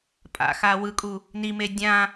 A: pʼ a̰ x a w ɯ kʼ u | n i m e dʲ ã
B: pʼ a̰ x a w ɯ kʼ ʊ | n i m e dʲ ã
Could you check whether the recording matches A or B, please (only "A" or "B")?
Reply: A